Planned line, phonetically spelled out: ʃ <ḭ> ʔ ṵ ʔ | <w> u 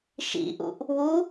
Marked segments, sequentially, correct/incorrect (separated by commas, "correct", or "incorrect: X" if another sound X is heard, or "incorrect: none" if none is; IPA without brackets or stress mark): correct, correct